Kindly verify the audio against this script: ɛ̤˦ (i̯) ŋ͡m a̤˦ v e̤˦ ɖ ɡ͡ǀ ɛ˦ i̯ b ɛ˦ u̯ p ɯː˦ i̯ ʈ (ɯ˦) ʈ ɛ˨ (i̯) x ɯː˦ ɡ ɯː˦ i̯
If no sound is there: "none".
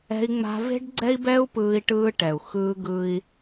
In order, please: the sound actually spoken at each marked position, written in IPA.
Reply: i̯, ɯː˦, u̯

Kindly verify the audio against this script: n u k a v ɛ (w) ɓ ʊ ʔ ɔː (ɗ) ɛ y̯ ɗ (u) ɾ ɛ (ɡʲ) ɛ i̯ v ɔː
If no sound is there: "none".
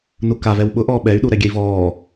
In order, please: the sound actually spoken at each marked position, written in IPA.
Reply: w, ɓ, u, ɡʲ

